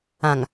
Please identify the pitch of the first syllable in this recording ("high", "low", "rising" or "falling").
low